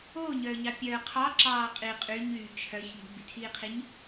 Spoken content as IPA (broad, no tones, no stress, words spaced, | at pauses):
oːɲœːɲɑ pʲœːqʰɑ ǁɑːqʼi qʼyɲyː t͡ʃʰœç ŋo̤bytʰiːqʰiɲ